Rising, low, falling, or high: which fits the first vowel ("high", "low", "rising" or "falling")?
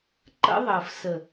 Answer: high